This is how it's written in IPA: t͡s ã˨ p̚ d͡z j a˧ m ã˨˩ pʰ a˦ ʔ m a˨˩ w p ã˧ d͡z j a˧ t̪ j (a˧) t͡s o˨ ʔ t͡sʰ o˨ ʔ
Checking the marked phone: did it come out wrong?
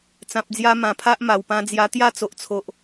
yes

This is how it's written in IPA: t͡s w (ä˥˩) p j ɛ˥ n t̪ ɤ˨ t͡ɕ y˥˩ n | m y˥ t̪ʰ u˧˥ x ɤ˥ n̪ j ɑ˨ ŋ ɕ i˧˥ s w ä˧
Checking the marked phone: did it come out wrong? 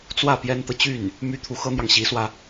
no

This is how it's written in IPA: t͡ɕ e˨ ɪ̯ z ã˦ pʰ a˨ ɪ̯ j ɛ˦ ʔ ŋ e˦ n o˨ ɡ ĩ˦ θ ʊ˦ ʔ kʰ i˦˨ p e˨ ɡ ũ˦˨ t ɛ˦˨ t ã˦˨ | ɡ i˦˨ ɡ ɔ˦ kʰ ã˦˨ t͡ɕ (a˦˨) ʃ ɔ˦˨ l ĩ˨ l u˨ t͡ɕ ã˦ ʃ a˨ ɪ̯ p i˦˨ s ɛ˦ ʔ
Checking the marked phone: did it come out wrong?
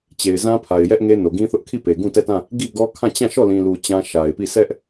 yes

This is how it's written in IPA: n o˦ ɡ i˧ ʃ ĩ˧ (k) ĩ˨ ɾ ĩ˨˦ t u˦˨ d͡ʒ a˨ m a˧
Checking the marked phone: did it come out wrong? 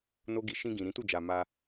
yes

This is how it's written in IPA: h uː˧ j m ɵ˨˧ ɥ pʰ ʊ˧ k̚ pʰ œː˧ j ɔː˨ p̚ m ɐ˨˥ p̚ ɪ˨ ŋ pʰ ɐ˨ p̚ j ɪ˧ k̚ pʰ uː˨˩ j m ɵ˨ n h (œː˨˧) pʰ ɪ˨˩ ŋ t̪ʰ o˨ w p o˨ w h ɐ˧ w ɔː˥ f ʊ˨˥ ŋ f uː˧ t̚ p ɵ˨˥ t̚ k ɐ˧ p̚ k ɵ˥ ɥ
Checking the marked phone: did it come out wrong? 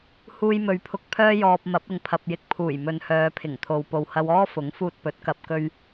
no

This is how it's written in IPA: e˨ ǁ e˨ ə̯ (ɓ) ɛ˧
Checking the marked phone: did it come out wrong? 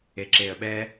no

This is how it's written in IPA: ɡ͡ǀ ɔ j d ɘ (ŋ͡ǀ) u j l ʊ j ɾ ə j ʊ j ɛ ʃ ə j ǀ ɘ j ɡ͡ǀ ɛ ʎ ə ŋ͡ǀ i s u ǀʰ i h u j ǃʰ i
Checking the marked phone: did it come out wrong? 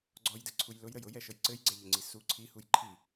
yes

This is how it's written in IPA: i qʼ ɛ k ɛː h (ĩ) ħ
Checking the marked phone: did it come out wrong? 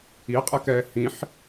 no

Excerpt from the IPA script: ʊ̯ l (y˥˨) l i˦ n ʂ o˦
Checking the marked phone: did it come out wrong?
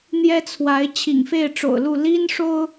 yes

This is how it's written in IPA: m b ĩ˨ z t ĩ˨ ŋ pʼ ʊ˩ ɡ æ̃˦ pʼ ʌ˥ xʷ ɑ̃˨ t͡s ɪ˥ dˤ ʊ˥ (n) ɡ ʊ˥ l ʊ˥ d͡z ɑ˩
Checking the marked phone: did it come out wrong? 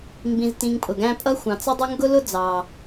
yes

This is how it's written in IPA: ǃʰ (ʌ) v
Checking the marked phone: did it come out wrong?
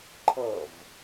no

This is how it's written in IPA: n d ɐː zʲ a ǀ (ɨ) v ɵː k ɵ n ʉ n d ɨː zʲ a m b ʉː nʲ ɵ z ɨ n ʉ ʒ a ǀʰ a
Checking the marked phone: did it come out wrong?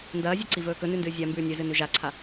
yes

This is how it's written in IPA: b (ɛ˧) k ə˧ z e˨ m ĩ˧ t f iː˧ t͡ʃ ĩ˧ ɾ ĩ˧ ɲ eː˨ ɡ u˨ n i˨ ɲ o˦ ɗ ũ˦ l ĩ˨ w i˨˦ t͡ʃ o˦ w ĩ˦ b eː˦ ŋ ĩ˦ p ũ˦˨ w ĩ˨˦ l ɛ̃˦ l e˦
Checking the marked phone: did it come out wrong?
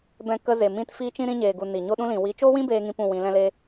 yes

